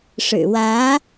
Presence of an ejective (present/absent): absent